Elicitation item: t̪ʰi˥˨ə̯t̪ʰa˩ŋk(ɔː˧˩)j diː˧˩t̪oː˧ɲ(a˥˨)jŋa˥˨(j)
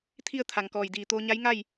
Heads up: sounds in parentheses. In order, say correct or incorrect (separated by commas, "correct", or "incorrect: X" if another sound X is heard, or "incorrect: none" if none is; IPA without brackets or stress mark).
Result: correct, incorrect: a˧˥, correct